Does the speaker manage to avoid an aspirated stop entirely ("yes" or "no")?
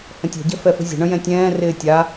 yes